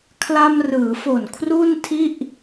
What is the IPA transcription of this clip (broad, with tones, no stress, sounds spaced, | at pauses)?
kʰ l a˧ m r ɯː˩˦ f o˨˩ n kʰ r u˥˩ n tʰ i˥˩ ʔ